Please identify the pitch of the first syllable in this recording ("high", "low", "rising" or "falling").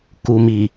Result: low